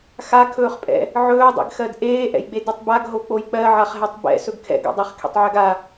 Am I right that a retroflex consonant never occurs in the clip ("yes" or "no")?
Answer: yes